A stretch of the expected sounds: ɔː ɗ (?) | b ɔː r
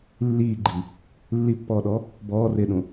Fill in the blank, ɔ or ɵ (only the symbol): ɔ